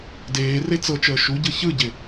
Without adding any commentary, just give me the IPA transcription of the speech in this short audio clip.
d eː r e t͡s ɤ t͡ʃ əː ʃ u ɟ ɯ ç ɯ ɟ ɪ

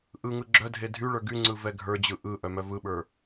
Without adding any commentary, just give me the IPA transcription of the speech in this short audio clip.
ʔ ɯ ŋ ɯ ɡ͡ǁ œ dʱ e dʱ y ɭ ə˞ ɡ y ŋ͡ǀ ɯ v ɛ ɡʱ ə˞ d͡ʑ ɯ ʔ ɯ ʔ œ m œ v ɯ ɓ ə˞

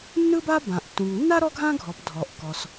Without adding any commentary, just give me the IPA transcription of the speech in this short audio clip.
nː ɯ˥ b a˥ b ã˩ ʔ tː ũ˩ ŋ nː a˥ ɾ ɔ˥ ɡʱ ã˥ ɡʱ ɔ˩ p dʱ ɔ˩ ʔ k ɔ˩ s

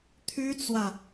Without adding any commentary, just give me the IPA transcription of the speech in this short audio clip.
t̪ʰ y˥ t͡s w ä˨

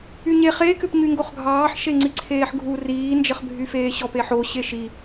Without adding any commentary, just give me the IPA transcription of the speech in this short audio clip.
y ɲ e χ e k ʏ p ɲ y ŋ ɡ o χ ɡʱ ɑː ħ ʃ e ŋ͡ǀ i ǀʰ eː ħ ɡʱ u r iː n d͡ʒ ə χ bʱ y f eː ɕ ɔ p e ħ o ɕ e ʃ i

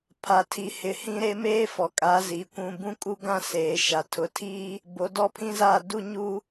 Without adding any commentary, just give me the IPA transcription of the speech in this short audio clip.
pʰ a˨ tʰ i˨ h ɪ˨ h ĩ˦ ɾ e˦ m eː˦ f ɔ˨ kʼ a˨˦ z i˨ kʷ ũ˨ b ũ˦ kʼ u˦ ɡ ã˦ s eː˨ ʃ a˨ tʰ ʊ˨ tʰ iː˦ | b o˨˦ d ɔ˦ pʰ ĩ˦ z aː˦˨ d u˦ ɲ uː˦

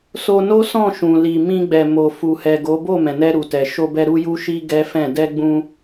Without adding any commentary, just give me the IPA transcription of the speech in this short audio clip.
s o˧ n o˦ s ɔ̃˦˨ ʃ ũ˨ l i˨ m ĩ˧ ɡ͡b ɛ˨ m o˨ f u˨ h ɛ˨ ɡ o˨˦ b o˦˨ m ɛ̃˨ n ɛ˧ ɾ u˨ t ɛ˨ ʃ o˧ b ɛ˧ ɾ u˦ j u˦ ʃ i˦ ɡ ɛ˦ f ɛ̃˦˨ d ɛ˧ ɡ͡b ũ˧

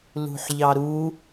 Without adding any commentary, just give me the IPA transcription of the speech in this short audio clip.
l ṳ ħ ʎ ɑ ɾ u

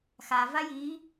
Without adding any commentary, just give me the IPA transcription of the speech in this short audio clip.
x a v a j i

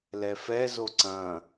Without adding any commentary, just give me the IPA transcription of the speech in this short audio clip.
l ɛ f ɛ z o ǀ ɐ̃

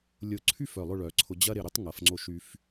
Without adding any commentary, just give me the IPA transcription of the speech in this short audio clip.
lʲ ʊ˧˩ ǀʰ y˥˧ f œ˧˩ lˠ ʊ˥˧ ɭ œ˩˧ ǀʰ ʊ˧ d͡ʑ ɐ˥ ɾ ɪ˧˩ ɾ ʏ˥ tˤ ŋ ɐ˩˧ f ŋ͡ǀ o˧ ʃ y˧ f

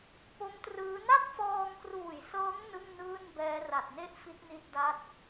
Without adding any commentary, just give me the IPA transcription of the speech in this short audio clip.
p o˦˥ m t r ɯː˦˥ n a˥˩ t̚ f ɔː˧ ŋ k r uː˨˩ j s ɤː˦˥ ŋ n ɯ˥˩ ŋ n ɯː˥˩ n b ɛː˦˥ r a˨˩ t̚ n e˥˩ ʔ f i˦˥ t̚ n i˥˩ t̚ d a˥˩ t̚

